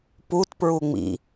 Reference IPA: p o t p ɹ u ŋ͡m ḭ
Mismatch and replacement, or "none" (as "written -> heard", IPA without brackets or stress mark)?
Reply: o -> u